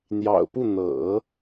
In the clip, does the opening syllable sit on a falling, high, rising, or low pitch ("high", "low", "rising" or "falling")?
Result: low